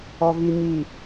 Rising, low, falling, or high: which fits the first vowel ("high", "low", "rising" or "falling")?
low